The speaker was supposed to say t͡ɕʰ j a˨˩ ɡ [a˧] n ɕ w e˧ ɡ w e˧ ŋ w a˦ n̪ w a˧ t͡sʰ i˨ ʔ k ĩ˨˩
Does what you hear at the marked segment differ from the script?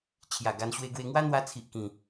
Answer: no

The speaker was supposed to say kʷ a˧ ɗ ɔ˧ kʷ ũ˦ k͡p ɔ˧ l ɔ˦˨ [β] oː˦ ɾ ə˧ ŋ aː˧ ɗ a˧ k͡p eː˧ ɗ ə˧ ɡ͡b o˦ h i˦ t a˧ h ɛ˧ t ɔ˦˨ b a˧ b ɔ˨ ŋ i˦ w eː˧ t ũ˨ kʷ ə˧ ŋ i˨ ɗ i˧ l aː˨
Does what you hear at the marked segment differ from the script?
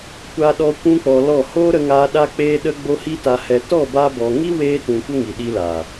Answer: yes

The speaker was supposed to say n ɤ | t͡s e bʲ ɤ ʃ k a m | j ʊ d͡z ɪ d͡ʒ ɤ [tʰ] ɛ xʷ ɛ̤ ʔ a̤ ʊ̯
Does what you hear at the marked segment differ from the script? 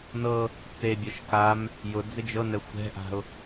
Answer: yes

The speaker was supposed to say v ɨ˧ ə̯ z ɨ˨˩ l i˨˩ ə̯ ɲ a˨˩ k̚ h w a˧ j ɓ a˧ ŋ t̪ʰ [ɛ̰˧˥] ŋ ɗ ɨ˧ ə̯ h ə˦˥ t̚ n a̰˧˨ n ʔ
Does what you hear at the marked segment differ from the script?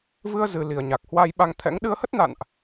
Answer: no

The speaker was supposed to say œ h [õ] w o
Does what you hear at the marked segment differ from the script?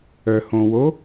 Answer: no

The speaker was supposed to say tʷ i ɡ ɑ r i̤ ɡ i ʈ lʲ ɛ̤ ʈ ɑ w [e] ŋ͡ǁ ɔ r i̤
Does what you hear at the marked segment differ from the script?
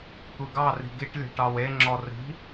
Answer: no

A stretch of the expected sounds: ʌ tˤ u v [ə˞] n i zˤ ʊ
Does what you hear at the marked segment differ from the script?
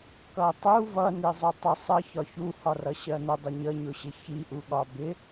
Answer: yes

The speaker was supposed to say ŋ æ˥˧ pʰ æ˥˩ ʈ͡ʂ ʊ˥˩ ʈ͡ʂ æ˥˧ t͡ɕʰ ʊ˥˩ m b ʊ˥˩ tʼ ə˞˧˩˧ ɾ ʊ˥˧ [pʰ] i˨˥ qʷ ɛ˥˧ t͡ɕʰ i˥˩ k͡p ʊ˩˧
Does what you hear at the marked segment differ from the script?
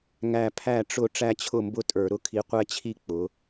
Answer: yes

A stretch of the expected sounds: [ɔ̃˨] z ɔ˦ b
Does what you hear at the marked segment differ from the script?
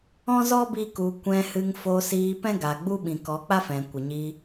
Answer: yes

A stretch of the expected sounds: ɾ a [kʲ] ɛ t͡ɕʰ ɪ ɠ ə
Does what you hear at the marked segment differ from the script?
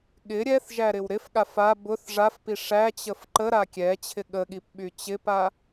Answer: no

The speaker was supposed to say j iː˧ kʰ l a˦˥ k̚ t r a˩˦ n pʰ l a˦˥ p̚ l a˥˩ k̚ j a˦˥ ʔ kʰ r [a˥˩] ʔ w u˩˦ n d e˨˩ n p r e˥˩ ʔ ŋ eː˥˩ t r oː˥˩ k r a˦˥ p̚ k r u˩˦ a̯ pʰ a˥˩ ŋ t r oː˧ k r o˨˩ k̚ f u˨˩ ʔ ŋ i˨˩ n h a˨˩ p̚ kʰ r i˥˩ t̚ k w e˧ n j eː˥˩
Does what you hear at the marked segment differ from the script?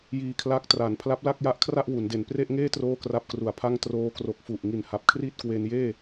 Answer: no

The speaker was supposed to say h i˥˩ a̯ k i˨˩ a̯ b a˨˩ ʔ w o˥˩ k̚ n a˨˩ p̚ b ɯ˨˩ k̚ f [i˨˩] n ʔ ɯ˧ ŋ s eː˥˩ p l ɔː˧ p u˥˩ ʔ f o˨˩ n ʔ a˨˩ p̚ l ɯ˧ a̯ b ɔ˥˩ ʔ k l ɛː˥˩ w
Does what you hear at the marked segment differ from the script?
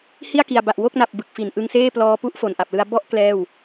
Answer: no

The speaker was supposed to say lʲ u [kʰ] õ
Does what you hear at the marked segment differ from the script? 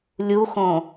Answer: yes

